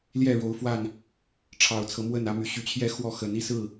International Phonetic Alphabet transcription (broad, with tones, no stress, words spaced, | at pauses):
ljɛ˥˨ɻo˨˦ʊ̯fwa˥˨n | ʈ͡ʂʰɑ˨˩ʊ̯t͡sʰɤ˨˦mwə˥˨nä˦ my˨˩ɕy˨˦t͡ɕʰjɛ˦ xwɔ˥˨xə˨˦n i˥˨sɹ̩˥˨